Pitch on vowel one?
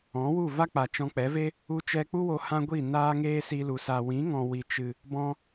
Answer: rising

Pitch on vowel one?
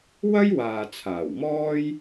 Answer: high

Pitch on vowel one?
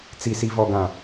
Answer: low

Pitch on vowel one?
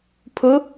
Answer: rising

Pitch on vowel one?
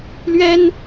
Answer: high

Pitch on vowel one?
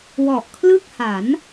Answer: low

